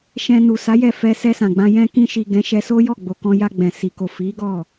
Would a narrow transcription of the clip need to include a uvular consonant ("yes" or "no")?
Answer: no